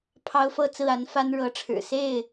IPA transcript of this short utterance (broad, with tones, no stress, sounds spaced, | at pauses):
pʰ ɑ˦ ʊ̯ f ɤ˥˨ t͡s ɹ̩˥˨ a˨˦ n f a˦ n ɻ ɤ˨˦ ʈ͡ʂʰ ɻ̩˨˩ s e˥˨ ɪ̯